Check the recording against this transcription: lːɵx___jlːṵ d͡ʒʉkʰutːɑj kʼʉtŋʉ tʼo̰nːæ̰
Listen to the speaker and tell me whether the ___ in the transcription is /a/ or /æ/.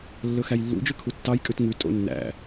æ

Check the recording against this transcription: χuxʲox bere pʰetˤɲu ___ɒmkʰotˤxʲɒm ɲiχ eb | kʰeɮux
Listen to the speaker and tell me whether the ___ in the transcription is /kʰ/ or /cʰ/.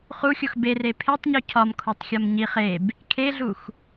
cʰ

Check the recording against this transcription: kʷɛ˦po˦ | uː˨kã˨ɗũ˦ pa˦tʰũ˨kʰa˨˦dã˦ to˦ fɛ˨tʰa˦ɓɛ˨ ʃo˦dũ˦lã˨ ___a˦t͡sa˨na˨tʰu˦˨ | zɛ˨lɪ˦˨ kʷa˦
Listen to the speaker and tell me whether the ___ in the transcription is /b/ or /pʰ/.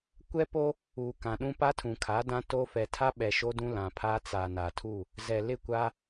pʰ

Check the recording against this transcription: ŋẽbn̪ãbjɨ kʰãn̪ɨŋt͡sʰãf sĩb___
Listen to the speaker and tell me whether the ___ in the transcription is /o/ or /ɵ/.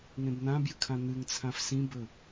ɵ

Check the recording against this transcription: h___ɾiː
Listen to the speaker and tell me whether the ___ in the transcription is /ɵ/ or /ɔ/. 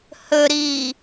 ɵ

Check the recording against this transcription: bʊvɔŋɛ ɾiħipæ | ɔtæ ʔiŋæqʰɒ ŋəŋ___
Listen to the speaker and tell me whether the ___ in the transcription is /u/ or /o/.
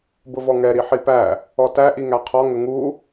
u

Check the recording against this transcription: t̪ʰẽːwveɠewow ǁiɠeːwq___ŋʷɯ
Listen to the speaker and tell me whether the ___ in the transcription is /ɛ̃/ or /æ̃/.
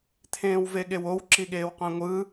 æ̃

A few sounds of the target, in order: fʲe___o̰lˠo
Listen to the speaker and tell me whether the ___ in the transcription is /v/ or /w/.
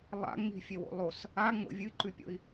w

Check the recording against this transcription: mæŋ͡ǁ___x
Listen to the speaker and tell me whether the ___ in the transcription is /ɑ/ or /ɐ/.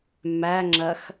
ɐ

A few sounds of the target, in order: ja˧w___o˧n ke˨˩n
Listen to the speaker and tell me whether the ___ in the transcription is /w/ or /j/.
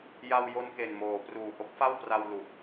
j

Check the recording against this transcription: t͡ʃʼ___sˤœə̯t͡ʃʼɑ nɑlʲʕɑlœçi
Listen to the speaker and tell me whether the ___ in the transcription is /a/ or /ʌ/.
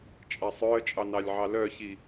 a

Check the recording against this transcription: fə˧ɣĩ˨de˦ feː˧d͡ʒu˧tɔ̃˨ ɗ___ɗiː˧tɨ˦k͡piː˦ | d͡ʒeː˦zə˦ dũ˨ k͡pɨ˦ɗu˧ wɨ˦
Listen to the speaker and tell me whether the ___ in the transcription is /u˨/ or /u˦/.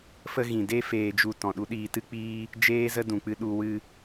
u˦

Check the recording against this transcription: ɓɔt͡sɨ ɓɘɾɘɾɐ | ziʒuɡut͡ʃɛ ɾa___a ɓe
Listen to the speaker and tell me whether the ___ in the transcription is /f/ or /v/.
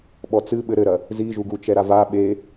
v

